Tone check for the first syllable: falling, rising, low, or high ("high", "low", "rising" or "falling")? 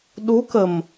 rising